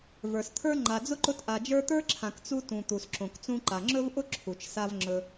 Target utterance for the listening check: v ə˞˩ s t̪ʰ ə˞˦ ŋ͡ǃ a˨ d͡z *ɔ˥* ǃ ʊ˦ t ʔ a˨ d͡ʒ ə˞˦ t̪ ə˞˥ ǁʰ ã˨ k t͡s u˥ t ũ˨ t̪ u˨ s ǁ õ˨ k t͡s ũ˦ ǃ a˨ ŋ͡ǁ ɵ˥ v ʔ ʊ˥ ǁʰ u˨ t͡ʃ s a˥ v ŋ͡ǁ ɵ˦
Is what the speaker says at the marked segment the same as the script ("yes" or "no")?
no